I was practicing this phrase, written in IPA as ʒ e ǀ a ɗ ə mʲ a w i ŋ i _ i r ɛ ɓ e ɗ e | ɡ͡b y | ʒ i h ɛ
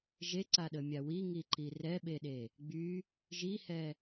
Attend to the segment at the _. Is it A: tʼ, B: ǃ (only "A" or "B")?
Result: B